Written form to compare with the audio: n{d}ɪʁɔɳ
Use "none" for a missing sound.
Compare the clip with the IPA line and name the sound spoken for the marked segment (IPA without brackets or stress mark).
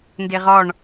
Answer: d